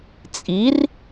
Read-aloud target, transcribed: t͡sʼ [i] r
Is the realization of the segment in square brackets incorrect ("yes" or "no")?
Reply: no